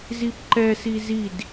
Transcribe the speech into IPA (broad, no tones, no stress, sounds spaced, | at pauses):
z i p ǃ ɛ s i z i d